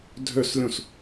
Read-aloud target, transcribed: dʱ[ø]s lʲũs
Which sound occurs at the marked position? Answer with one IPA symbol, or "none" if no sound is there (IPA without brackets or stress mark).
ø